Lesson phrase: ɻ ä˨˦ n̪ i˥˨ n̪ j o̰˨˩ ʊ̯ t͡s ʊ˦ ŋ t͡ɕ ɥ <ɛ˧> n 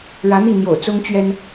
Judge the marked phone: incorrect: ɛ˦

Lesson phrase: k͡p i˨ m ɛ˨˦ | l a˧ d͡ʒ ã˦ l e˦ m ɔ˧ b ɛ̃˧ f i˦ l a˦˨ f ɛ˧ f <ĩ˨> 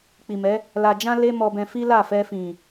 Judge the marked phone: correct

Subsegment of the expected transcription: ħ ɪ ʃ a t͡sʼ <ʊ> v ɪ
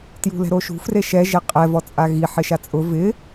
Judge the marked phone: correct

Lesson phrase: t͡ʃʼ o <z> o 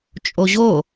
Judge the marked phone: incorrect: ʑ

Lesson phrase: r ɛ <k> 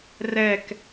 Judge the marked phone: correct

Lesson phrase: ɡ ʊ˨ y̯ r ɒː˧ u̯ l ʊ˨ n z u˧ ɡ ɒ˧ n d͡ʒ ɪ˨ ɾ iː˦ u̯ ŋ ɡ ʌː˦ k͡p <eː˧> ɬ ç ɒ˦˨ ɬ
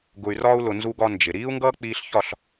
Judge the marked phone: incorrect: iː˧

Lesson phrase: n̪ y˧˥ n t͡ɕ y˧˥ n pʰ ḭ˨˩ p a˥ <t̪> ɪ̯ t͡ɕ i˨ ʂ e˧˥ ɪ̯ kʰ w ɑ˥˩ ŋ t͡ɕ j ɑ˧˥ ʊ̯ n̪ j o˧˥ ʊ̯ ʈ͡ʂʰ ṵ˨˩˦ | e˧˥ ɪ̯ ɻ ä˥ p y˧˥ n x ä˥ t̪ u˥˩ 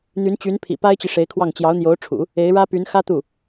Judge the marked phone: incorrect: none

